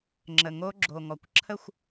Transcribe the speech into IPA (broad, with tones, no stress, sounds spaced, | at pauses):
ŋ͡ǁ ə˨ ŋ o˦˥ ɡ͡ǁ o˨ ŋ ɔ˨ kʷ ǁʰ ə˥˨ xʷ